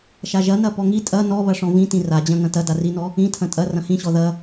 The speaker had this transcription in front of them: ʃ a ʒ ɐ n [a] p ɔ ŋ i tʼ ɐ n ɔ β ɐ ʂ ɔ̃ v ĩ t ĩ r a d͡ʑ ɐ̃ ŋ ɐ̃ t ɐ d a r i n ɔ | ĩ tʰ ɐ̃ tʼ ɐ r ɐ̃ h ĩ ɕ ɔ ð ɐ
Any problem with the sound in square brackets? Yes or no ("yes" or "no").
yes